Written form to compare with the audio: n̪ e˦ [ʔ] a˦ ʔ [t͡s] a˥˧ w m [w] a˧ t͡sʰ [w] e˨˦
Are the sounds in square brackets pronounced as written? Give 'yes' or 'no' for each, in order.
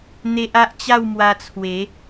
yes, no, yes, yes

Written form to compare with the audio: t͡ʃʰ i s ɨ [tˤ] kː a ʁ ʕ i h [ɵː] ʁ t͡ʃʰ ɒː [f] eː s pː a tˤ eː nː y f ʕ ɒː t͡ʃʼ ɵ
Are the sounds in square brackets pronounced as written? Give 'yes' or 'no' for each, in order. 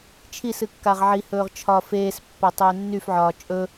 no, yes, yes

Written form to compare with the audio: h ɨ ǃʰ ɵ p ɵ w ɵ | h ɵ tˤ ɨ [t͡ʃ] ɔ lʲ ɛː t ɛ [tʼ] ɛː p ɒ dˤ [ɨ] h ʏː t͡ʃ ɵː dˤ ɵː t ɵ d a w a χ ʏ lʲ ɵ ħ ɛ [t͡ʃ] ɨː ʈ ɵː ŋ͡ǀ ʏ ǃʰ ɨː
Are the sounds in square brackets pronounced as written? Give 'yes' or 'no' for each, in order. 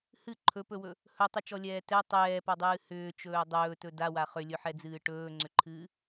yes, no, no, no

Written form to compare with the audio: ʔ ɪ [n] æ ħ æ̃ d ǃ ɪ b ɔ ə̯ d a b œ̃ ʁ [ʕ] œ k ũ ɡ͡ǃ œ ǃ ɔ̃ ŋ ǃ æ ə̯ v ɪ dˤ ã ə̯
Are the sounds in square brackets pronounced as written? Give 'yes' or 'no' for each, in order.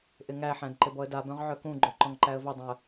no, yes

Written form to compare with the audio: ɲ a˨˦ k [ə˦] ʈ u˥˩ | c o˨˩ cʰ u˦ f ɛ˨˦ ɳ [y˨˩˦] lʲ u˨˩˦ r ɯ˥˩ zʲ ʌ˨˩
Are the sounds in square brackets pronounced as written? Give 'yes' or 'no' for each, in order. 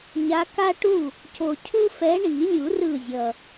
no, no

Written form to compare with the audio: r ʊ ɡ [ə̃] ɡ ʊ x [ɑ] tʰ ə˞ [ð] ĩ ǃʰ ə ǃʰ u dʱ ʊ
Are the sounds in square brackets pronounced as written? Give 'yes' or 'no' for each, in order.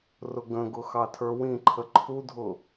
yes, yes, no

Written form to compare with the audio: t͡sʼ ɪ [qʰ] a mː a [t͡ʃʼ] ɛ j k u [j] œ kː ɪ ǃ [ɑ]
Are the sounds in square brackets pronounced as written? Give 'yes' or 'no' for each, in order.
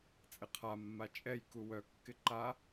yes, yes, no, no

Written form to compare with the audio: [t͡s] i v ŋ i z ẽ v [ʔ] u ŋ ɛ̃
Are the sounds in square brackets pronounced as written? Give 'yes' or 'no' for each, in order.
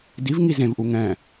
no, yes

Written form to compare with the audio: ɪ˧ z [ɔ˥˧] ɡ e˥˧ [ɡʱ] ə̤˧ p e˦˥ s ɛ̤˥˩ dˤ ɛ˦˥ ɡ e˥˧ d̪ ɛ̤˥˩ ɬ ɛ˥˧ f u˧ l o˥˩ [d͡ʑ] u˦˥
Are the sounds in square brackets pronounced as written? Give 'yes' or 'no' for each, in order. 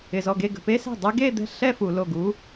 no, no, no

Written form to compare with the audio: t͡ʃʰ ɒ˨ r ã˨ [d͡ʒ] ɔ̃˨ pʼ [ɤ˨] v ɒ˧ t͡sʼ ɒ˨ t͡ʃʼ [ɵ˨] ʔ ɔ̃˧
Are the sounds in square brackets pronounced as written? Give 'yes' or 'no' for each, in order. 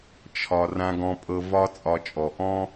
no, yes, no

